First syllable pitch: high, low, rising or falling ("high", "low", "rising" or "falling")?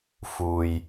low